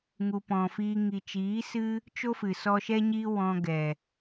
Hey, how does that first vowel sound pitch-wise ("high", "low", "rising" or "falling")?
low